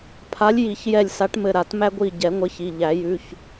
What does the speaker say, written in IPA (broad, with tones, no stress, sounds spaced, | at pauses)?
pʰ a˨˥ lʲ j i˨˩˦ ç j ɛ˧˩ lʲ s a˨˥ ʈ m ɘ˧˩ ɾ a˨˩˦ t m æ˧ ɡʷ i˧˩ ɟ ɛ˨˩˦ ŋʷ ɘ˨˥ ç i˩˧˩ ʎ æ˨˩˦ j ʉ˩˧˩ ç